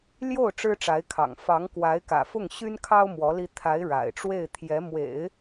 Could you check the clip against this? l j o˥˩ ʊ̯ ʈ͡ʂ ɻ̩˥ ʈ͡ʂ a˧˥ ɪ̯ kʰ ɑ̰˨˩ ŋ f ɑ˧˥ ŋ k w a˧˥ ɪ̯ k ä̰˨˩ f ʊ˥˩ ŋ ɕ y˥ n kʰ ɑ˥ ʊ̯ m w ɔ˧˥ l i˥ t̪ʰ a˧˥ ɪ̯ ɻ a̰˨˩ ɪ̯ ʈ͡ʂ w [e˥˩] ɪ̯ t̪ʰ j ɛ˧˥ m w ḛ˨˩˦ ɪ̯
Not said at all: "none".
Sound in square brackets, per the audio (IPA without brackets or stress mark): e˥˩